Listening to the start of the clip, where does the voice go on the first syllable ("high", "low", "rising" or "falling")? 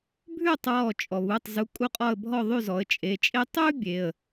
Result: falling